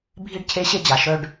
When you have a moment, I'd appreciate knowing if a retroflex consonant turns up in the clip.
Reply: yes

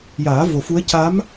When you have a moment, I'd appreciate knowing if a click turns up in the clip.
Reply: no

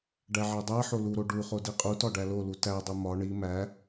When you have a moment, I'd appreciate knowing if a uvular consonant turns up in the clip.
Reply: yes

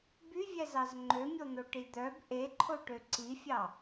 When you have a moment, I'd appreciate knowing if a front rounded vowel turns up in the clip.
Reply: yes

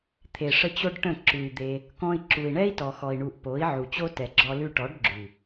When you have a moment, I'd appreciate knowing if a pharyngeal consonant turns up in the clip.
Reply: yes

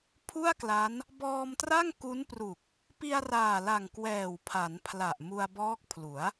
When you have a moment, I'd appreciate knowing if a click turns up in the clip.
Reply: no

